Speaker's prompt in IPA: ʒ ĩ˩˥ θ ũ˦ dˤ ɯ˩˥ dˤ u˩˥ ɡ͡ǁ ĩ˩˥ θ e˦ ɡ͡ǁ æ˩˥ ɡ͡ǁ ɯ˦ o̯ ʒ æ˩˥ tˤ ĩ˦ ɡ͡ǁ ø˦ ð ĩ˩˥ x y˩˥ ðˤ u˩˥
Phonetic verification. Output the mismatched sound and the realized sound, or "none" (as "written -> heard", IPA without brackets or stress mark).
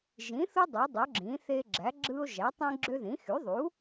ũ˦ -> u˦